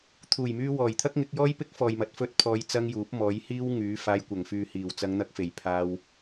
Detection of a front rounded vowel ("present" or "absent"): present